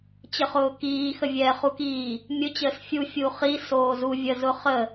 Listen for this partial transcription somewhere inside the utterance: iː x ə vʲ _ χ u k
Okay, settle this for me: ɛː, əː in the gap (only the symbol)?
ɛː